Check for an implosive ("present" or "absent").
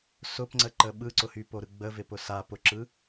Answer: present